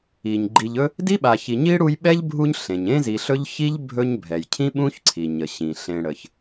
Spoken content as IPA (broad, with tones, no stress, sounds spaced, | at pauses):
i˩ ɲ ɡ͡ǃ i˨ ʎ ɵ˥ | d i˥ ɓ a˨ ç i˨ ɲ i˥ ɽ u˦ j ɓ ɛ˥ ʎ bʱ u˦ ɲ ɬ ẽ˩ ɲ ẽ˥ z i˨ ɬ ɵ˥ ʎ ç i˥ ʎ bʱ ɵ˦ ɲ bʱ ɛ˩ j cʰ ĩ˥ ɓ ũ˥ ç ǀʰ i˩ ɲ ə˩ ɕ ĩ˩ ɬ ẽ˨ ɽ ə˩ ç